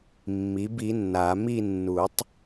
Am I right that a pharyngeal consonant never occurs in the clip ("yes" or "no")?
yes